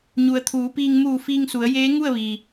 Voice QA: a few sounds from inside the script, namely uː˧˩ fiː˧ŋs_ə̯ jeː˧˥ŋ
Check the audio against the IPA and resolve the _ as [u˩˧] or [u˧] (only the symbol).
u˩˧